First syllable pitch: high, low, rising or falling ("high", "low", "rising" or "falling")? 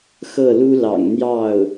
falling